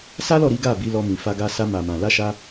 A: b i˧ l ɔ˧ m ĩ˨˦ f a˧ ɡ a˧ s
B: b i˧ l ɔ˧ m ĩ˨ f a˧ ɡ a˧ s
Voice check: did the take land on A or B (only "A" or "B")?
B